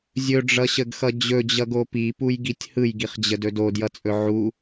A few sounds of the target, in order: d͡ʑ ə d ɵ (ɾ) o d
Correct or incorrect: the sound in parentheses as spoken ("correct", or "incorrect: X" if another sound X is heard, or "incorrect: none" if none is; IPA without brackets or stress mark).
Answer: incorrect: d